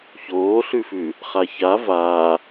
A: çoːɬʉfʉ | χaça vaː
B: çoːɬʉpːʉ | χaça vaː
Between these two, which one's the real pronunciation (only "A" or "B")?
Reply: A